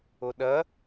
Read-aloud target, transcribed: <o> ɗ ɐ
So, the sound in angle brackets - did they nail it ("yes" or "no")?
yes